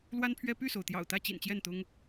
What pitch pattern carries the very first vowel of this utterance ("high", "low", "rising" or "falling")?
high